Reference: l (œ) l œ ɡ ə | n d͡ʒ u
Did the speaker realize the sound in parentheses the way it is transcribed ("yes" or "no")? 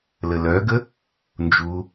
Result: no